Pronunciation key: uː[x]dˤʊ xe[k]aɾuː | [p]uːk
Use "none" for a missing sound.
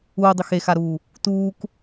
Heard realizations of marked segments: none, x, t

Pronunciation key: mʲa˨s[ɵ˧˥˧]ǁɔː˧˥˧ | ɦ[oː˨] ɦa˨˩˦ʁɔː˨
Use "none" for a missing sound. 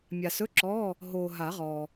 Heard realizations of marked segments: ɵ˧˥˧, oː˨

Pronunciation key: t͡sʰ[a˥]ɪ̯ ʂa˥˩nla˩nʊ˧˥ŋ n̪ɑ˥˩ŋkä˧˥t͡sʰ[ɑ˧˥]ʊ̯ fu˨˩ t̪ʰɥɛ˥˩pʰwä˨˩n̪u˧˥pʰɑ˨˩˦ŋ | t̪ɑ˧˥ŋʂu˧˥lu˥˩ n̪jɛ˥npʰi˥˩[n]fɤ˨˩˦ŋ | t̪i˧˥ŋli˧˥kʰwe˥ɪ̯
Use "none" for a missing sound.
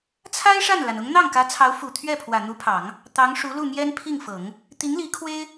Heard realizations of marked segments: a˥, ɑ˧˥, ŋ

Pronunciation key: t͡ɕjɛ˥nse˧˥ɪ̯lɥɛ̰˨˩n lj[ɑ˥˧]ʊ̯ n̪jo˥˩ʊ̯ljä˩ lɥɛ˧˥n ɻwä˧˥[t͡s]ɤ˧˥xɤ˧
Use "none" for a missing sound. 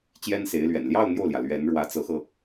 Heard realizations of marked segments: ɑ˥˧, t͡s

